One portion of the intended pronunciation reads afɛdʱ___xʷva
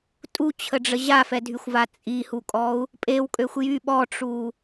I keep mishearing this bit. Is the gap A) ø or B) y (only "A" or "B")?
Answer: B